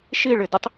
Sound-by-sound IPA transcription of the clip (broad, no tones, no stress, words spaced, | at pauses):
ʃiɭɪdɪtˤ